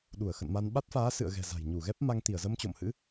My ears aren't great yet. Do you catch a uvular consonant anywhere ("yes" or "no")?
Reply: no